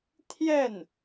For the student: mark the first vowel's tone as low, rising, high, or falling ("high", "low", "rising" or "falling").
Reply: falling